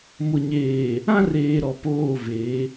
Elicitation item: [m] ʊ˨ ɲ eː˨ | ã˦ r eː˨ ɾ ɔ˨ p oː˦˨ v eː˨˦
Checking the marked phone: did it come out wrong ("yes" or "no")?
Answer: no